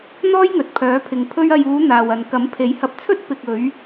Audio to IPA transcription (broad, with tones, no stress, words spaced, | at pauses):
n̪ɔː˥jŋɵ˨t̚pʰœː˨˥pʰɪ˨ŋ pʰɵ˧ɥɐ˨juː˨˧ n̪aː˨wɐ˨n kɐ˨˥mpʰe˨˥jhɐ˧p̚t͡sʰɵ˥t̚ pɪ˨k̚ ɵ˨˧ɥ